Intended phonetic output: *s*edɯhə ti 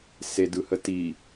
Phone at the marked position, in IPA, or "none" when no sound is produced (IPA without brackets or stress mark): s